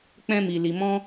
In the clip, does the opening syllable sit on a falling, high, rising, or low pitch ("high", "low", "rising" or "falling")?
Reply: high